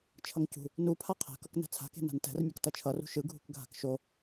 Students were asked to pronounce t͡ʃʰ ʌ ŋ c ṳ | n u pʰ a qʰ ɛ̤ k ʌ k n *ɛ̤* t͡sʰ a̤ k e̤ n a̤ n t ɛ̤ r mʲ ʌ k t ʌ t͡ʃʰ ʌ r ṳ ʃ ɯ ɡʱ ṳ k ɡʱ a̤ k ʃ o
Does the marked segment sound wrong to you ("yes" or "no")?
no